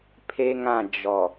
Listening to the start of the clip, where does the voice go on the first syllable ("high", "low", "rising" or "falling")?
high